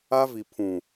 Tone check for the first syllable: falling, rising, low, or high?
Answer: high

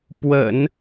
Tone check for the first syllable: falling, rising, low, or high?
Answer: low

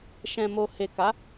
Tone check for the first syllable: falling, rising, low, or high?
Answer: low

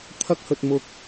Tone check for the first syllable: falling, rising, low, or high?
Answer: high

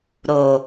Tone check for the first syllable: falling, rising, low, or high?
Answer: low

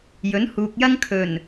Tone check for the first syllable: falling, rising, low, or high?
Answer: rising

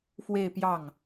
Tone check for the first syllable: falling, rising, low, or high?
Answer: falling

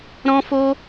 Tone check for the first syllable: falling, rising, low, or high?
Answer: high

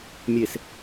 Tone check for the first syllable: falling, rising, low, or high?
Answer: low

